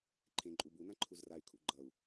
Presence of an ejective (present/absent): present